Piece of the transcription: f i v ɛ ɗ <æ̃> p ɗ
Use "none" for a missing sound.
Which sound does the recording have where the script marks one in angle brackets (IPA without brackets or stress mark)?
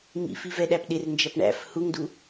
æ